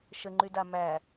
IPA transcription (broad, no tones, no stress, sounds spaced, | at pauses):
ʃ ə ŋ͡ǃ y d a m æ